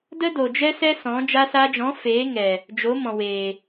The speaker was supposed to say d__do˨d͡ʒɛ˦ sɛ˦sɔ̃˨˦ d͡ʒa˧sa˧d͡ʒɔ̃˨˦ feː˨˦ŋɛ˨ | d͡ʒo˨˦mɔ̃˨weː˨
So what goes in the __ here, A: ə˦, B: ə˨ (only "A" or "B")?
A